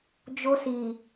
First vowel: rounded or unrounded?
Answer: rounded